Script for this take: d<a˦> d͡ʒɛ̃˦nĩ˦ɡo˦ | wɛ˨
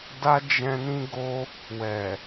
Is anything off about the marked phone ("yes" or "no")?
no